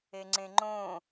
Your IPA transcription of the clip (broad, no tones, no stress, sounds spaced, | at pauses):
e ŋ͡ǀ ẽ ŋ͡ǃ õː